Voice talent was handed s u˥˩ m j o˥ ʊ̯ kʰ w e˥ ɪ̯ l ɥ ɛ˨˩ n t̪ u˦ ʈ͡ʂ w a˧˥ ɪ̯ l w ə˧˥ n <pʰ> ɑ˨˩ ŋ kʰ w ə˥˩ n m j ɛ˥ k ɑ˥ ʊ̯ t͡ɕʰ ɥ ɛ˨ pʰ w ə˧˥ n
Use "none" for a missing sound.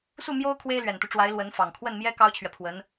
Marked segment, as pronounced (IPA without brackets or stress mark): f